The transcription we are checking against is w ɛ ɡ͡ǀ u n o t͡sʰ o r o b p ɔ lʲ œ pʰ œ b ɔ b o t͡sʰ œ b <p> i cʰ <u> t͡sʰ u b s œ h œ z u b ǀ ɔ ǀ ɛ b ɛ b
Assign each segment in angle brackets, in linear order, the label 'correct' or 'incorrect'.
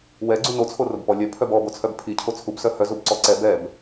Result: incorrect: pʰ, incorrect: o

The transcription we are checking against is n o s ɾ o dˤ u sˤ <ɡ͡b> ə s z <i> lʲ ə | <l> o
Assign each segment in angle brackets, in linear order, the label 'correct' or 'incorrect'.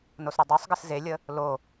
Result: incorrect: ɡ, incorrect: e, correct

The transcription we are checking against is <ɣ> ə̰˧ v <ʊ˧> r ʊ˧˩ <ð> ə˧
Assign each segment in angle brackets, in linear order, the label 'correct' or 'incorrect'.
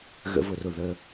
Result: correct, incorrect: ʊ˧˩, correct

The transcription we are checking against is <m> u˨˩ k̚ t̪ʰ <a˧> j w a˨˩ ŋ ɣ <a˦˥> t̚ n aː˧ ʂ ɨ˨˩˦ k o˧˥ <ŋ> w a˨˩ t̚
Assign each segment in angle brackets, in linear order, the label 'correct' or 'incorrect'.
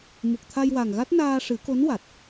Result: correct, correct, correct, incorrect: n

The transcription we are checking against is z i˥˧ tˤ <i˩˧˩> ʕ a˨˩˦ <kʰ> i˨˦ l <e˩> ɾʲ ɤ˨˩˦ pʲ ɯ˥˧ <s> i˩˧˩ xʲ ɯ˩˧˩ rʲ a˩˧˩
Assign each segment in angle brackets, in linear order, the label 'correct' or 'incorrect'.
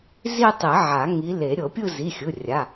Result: incorrect: i˨˩˦, incorrect: ŋ, incorrect: e˨˩˦, incorrect: z

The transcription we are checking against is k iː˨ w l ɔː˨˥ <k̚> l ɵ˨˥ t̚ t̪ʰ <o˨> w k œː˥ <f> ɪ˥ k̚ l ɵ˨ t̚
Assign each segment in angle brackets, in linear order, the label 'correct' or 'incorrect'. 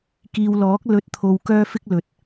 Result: correct, correct, correct

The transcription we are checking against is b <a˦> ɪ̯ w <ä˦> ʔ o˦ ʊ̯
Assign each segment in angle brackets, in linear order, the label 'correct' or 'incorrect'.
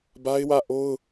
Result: correct, incorrect: ä˦˨

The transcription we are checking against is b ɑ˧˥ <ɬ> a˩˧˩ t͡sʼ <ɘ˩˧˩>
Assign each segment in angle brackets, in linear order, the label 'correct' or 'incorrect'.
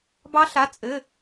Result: correct, correct

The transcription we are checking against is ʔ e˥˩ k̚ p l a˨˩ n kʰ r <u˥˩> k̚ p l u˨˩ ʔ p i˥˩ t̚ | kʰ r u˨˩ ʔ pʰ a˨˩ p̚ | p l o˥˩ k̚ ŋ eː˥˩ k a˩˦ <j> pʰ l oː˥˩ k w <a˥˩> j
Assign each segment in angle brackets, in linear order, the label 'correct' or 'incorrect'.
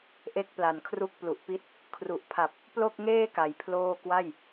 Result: correct, correct, correct

